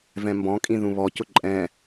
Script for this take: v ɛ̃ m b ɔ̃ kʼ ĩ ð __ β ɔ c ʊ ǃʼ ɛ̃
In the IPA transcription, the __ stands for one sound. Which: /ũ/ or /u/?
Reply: ũ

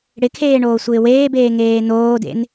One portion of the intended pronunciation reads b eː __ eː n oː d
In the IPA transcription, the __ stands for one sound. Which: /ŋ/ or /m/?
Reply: ŋ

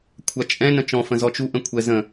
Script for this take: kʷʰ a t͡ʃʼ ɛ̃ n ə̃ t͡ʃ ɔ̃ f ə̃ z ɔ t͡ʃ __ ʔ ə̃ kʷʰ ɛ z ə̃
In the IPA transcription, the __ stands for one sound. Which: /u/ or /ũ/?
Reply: u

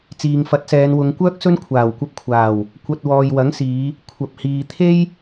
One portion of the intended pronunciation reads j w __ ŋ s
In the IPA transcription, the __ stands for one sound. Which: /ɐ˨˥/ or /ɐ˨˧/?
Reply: ɐ˨˥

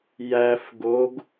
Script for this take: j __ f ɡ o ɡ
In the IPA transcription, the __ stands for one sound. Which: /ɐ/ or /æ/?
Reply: æ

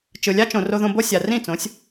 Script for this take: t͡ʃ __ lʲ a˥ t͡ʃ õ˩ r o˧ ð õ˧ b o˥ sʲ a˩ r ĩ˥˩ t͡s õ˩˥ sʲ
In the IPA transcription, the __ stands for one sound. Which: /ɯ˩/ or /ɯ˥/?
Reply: ɯ˩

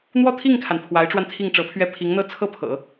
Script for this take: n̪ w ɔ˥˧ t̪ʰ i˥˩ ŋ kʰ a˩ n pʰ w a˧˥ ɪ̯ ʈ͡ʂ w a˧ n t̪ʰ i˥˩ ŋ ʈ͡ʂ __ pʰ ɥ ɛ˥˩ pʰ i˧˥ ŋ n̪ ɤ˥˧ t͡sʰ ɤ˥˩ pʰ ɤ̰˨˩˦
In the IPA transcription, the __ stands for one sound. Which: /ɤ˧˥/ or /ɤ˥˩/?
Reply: ɤ˧˥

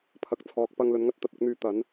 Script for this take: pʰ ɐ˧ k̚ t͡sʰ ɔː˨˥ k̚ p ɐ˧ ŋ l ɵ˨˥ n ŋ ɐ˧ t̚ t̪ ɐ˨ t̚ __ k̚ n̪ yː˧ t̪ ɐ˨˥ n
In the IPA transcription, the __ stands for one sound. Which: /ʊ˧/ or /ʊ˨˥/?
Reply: ʊ˨˥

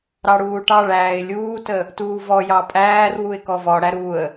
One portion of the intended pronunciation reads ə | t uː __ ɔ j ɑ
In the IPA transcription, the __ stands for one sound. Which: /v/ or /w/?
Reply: v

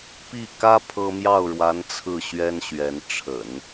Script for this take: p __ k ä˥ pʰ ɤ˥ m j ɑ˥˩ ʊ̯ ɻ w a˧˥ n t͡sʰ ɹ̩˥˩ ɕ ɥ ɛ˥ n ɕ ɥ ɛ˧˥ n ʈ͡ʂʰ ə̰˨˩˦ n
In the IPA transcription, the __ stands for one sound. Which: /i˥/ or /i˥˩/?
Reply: i˥˩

